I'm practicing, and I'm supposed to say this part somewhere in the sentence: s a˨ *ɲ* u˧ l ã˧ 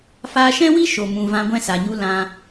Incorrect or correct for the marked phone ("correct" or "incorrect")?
correct